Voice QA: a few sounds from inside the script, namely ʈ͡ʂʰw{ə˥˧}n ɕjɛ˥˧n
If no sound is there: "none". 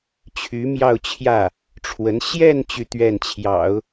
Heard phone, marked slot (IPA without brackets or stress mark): ə˧˥